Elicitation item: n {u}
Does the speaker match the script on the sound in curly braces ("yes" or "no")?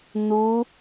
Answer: yes